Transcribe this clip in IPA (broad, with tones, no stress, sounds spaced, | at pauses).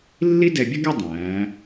lː i˥ d ɛ˧ bʲ ə˥ ɡ ʌ˥˧ dˤ æ̃ː˩˧